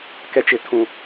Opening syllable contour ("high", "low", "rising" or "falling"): high